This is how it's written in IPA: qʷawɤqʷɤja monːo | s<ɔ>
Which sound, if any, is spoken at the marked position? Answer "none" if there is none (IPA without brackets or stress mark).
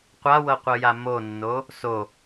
o